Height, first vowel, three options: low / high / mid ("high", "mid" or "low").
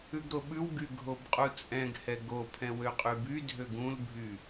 high